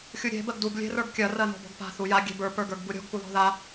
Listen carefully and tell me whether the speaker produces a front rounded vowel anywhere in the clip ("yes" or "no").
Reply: no